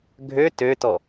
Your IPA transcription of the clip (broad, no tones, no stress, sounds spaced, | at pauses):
ɡʱ ø t ø t ɔ